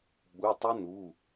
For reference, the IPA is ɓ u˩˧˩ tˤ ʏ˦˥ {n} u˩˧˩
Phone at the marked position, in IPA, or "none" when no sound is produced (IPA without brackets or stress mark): n